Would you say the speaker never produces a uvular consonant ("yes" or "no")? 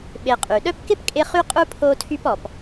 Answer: no